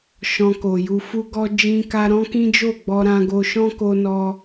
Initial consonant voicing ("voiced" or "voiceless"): voiceless